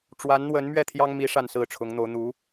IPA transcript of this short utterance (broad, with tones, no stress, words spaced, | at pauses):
ʈ͡ʂwa˧˥nn̪wə˧˥n mɥɛ˥˩t̪ʰjɑ˥ŋmi˧˥ ʂa˥˧nsɹ̩˥˩ʈ͡ʂʰʊ˧˥ŋn̪o˧˥ʊ̯ n̪u˧˥